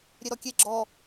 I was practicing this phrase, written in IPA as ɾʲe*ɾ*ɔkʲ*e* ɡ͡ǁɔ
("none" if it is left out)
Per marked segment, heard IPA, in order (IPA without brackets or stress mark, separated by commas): ɾ, e